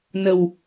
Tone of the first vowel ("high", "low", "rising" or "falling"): low